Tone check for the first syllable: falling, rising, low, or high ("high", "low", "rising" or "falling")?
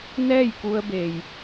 falling